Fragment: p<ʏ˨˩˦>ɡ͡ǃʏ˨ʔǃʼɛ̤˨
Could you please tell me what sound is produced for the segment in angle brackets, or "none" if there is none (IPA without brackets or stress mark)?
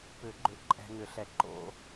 ʏ˨˩˦